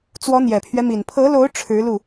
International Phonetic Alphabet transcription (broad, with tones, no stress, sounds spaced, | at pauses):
t͡s w ɔ˧˥ n̪ j ɛ˨˩ pʰ ɥ ɛ˦ m i˨˩ n pʰ ɤ˧˥ l o˧˥ ʊ̯ ʈ͡ʂʰ ɻ̩˧˥ l u˥˩